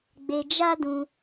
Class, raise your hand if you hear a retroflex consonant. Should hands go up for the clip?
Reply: no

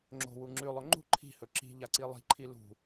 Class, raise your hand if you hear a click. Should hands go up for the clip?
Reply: yes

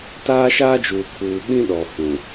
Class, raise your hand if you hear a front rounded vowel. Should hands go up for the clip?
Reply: no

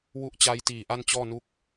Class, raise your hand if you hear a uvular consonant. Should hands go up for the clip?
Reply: no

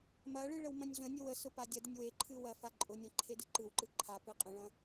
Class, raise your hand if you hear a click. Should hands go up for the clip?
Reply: yes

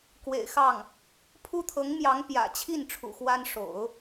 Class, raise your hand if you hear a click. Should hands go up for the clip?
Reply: no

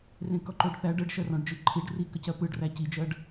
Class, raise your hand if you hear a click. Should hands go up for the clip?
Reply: yes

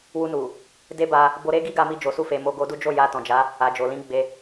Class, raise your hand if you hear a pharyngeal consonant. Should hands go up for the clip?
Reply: no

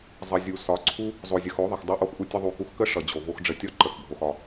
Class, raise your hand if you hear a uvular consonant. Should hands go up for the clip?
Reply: no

